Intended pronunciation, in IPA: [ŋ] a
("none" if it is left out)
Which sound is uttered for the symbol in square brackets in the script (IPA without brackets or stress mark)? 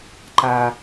ǃ